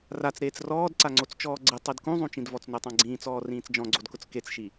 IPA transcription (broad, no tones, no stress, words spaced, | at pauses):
rat͡sɾeːt͡s rɔːdǀaŋ͡ǀot͡st͡ʃɔː ɡ͡ǀɪtˤid kũzˤũt͡ʃĩdvɔt͡s notˤãɡ͡ǀĩːt͡sɔː rĩːt͡sd͡ʒɔ̃ɡ͡ǀodkʊt͡s ket͡sʃi